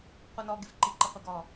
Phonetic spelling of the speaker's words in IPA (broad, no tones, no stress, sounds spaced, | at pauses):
qʷ i n ɔ ɡ ɪ f ǃ i ǃ ɪ qʷ i ɡ ɔ